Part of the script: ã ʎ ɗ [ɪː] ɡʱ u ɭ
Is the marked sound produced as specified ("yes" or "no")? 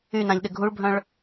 no